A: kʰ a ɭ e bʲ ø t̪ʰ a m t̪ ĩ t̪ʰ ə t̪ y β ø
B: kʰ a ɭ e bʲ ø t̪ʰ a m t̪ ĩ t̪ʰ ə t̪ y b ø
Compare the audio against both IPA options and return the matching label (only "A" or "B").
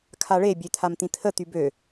B